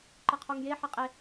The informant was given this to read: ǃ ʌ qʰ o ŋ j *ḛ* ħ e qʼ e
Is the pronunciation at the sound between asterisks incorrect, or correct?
incorrect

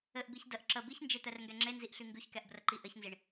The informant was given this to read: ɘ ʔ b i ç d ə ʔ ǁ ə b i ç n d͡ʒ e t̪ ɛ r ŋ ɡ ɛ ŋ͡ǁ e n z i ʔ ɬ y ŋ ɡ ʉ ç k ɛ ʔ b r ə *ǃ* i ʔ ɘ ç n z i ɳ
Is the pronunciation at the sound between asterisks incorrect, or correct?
correct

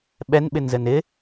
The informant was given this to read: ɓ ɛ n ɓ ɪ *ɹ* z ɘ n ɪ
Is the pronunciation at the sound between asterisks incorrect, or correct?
incorrect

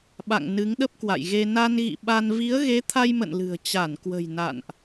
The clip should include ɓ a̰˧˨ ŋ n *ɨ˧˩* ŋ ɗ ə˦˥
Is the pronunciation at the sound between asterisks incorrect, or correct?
incorrect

